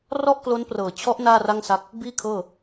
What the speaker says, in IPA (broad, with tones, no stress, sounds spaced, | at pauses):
r ɔ˥˩ ʔ k l o˦˥ n p r ɤː˨˩ t͡ɕʰ ɔ˦˥ ʔ n aː˥˩ r a˥˩ ŋ s a˦˥ k̚ | b iː˥˩ kʰ ɤː˥˩